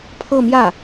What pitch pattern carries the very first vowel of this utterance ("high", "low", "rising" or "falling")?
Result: falling